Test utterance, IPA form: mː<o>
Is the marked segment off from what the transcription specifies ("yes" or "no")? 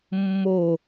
no